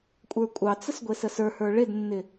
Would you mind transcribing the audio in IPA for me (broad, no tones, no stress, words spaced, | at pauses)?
kʷʼə˞kʷʼɑt͡səs ɡʷesəsə˞hə˞ ɭednːɪ